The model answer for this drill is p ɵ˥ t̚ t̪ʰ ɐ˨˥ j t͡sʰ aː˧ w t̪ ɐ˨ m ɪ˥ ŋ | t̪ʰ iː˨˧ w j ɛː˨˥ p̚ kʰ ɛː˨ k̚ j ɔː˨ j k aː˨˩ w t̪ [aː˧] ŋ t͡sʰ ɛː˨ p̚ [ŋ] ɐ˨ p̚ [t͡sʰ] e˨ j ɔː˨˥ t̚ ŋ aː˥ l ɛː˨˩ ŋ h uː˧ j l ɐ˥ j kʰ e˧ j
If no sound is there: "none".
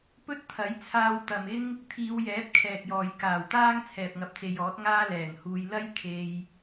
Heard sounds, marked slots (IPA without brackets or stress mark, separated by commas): aː˥, ŋ, t͡s